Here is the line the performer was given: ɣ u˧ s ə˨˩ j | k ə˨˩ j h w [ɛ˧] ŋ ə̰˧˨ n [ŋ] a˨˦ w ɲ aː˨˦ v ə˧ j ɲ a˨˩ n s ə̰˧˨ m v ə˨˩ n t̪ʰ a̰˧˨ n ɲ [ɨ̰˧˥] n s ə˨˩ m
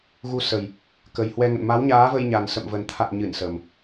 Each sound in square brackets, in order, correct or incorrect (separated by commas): correct, incorrect, incorrect